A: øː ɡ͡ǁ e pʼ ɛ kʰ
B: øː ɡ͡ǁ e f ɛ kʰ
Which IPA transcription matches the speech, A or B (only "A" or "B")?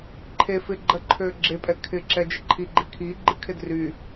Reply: A